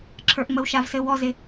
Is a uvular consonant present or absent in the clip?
absent